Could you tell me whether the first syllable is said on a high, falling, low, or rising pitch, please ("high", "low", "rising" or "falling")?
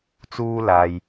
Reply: high